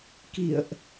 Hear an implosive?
no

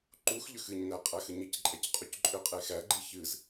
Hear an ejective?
yes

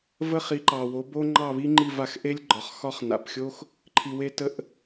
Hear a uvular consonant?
yes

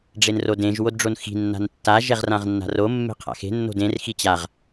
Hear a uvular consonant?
yes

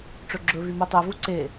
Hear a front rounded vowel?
yes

